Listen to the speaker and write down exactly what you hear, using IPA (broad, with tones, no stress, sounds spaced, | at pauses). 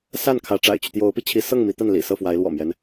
s a˥˩ n kʰ ä˧˥ ʈ͡ʂ a̰˨˩ ɪ̯ t͡ɕ y˦ t̪ j o˧˥ ʊ̯ p i˧ t͡ɕʰ i˧˥ s ɤ˥˩ ŋ m i˧˥ t̪ a˥˩ n l ḭ˨˩ s ɤ˥˩ f w a˧˥ ɪ̯ l w ɔ̰˨˩ m j ɛ˦ n